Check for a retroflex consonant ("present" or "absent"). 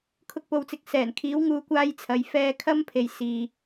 absent